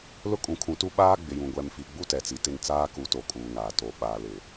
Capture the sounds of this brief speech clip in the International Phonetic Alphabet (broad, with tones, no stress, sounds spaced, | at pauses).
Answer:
l ʊ˦ kʼ ũ˨ kʰ ũ˨˦ t u˦ ɓ aː˦ ɡ͡b ɪ˨ j ũ˨ ɡʷ ɛ˨ m f i˨ ɡ͡b u˦ t ɛ˨ t͡s i˨ t ɪ˦˨ n t͡s aː˦ k u˨˦ t o˨ kʼ uː˨ ŋ aː˨ t o˨ ɓ aː˨ l ɪ˨